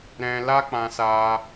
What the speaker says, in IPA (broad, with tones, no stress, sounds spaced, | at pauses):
ɾ ɛ̃˧ l a˦ k͡p ã˧ s aː˧